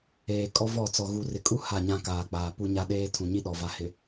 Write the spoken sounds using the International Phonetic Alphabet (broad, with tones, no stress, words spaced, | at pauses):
eː˨ kʼɔ˦vɔ˦˨t͡sɔ˨ ɣu˨rɪ˨kʼu˦ ha˦˨ɲã˦ kaː˨k͡paː˨ pu˦ɲa˦ɗeː˦ tʰũ˨ɲi˦ ɗɔ˨va˨hɪ˨